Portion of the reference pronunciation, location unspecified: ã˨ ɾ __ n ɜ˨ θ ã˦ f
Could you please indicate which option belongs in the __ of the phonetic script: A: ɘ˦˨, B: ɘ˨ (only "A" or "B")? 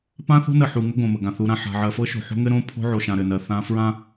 B